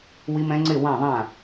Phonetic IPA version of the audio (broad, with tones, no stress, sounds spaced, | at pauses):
w i˦˥ m ɛ̃˦˥ ŋ͡ǀ ɪ˦˨ w ã˦˨ ðˤ ã˦˨